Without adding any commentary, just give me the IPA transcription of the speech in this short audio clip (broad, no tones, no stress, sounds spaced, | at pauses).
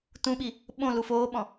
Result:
t ũ ɓ i | ɓ õ l u f oː ɓ ɔ̃